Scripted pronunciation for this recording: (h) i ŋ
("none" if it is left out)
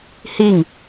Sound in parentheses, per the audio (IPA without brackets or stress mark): h